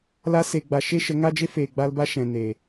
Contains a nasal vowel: yes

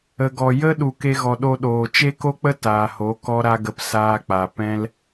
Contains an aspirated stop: no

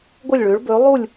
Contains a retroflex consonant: yes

